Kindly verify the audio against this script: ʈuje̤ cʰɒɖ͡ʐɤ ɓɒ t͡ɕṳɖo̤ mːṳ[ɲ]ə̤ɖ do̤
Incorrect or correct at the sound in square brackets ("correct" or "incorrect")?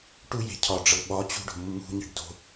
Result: correct